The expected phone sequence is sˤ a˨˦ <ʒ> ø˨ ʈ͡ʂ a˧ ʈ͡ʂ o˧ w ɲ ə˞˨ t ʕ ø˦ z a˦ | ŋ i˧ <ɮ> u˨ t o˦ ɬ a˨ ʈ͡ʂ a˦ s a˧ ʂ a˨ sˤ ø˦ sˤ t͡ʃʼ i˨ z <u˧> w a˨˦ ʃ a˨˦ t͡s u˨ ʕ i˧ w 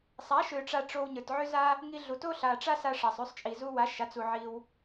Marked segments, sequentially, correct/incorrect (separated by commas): incorrect, correct, correct